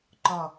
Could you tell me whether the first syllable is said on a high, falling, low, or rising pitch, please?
falling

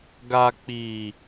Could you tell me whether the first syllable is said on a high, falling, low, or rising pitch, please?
low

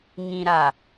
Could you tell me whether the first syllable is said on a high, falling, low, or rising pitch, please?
low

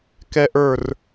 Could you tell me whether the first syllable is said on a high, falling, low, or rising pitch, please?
high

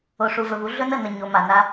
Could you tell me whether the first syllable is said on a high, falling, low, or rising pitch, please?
low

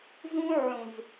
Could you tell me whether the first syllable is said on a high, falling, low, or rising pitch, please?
high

